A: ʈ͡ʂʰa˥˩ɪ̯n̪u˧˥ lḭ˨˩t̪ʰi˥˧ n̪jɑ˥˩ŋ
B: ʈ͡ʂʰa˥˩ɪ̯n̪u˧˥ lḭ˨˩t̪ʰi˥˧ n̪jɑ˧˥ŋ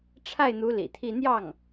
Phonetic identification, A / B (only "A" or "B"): A